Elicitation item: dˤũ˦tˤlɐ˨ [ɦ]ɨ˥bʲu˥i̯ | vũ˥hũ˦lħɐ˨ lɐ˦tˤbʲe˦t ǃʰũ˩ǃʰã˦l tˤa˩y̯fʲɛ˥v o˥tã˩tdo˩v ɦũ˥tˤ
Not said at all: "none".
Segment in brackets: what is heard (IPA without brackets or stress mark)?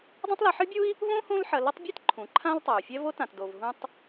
ħ